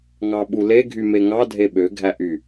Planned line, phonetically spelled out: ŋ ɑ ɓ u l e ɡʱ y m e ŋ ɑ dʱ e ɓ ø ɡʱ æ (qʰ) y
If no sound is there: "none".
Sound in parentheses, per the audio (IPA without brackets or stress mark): ʔ